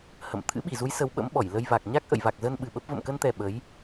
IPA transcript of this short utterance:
hə̰˧˨m t̪ʰɨ̰˧˥ɓi˧˩zu˨˦j sə˨˦wɓə̰˧˥mɓɔ˧˩jlə˧j va˨˩k̚ ɲa˦˥k̚ʔə̰˧˨jva˨˩k̚zə˧n ɓɨ˨˩ɓə˦˥p̚ və̰˧˨mkə˧nt̪ɛ˨˩ ɓə˨˦j

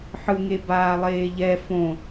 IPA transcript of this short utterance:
ħɯŋe baːlˠeːʎɛ fõ

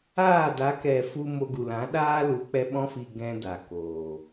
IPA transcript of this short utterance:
aː˦˨da˨˦kɛ˨ fu˦ mo˧ɡu˨lã˨˦ ɗaː˦ lu˨˦k͡pɛ˧ ɓɔ̃˧fi˨ ɡɛ̃˦da˨koː˨

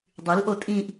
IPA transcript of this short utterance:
dˤylʔo tʼĩʔ

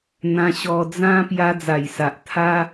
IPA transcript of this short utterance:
n̪ã˧ɕɔ˧ d͡zã˦ pja˧d͡za˨˩jsa˨ʔ t̪ʰa˦

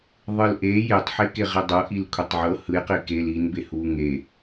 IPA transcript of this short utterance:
ðˤɯlʔe jetˤħe keʁidˤɤ ʔilkʷʰetˤʕɤ hɯjqi kel inbe huŋe

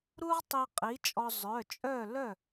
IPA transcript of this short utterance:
ɾu˥ʁtˤi˧ qʼi˨˥t͡ʃʼɔ˧ zˤœ˩˧˩t͡ʃʼœ˥˨ lœ˥˨

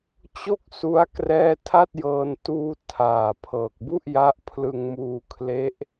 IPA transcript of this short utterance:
t͡ɕo˥˩k̚su˦˥a̯ krɛː˥˩ tʰa˥˩t̚jɤː˧n tuː˧ tʰaː˨˩ pʰɤː˨˩k̚bu˥˩ʔja˦˥ʔ pʰlɯ˧ŋmuː˧kʰle˦˥ʔ

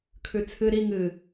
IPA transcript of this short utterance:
kʰʉt͡sʰɨ ɾi ŋɨ

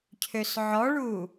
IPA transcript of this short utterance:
cʰøsʕɔɭu

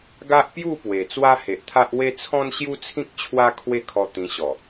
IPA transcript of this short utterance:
ɡa˦ʔpju˥˧ pwe˨˩t͡swa˦ he˨ʔt̪ʰa˦ʔ we˦ t͡sʰɔ̃˦nɕju˦t͡sʰĩ˦k̚ t͡ɕʰwa˦kʰwe˥˧kʰɔ˧ t̪ĩ˧ɕɔ˨˩

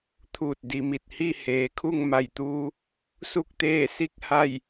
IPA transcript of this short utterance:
t̪ʰuː˧˩t̚ di˩mi˧˩t̚hi˥˨ heː˩kʰu˥˨ŋma˧˩jt̪uː˧ | su˥˨k̚t̪eː˥˨si˥˨k̚ ha˥˨j

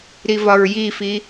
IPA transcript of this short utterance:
ɾivɒɹjifi

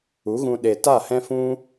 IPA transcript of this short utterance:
u˨˦ɣũ˧ ɗe˨ta˦˨ hɛ̃˦fũ˦

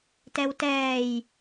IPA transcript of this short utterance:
tɛwtɛːj

